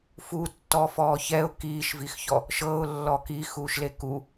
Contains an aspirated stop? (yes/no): no